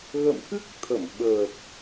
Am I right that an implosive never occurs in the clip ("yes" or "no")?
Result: no